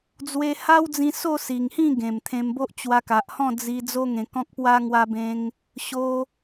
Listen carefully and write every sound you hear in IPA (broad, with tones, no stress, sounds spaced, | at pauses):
d͡z w e˧ h a˦ w d͡z ĩ˧ s o˥˧ s i˨˩ ŋ h ĩ˥˧ ɡ ẽ˨˩ m t̪ʰ ẽ˧ m b o˦ ʔ t͡ɕ w a˧ k a˨ ʔ h ɔ̃˥˧ d͡z i˧ d͡z o˦ ŋ ẽ˧ k ɔ̃˦ k̚ p w a˦ ŋ w a˦ b ẽ˦ ŋ | ɕ o˧